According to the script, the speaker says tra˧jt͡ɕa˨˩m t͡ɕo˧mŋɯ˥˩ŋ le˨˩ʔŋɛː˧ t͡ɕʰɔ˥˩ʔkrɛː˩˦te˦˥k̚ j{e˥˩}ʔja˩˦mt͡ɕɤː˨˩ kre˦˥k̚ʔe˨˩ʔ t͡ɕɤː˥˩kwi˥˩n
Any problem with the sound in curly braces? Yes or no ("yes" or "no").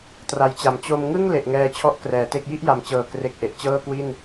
yes